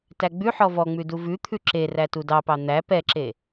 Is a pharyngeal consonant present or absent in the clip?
present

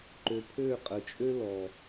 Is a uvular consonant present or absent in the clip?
present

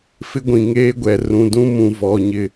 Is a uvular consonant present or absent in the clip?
absent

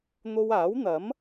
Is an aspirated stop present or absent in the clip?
absent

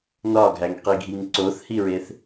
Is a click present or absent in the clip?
present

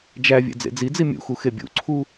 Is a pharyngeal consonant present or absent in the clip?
absent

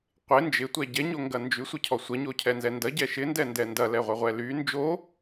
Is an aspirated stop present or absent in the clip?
present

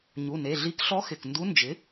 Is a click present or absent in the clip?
absent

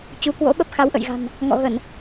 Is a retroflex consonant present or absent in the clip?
absent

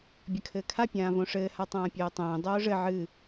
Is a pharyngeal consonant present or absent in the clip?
present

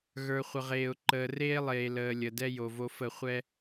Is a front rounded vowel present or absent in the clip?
absent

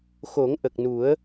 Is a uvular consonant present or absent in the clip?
absent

